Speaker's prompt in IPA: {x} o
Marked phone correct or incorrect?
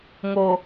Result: incorrect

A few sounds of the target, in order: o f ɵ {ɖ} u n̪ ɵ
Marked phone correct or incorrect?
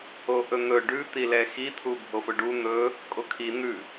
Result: correct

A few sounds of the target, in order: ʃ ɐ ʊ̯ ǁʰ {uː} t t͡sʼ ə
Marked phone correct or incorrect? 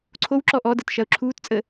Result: correct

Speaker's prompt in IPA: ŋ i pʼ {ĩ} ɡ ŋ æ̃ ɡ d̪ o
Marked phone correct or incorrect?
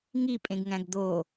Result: incorrect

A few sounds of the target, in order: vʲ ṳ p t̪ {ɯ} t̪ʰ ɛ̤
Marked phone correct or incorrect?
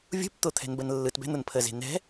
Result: incorrect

